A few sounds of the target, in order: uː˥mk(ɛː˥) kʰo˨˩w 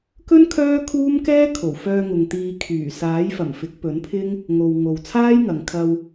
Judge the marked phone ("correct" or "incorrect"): correct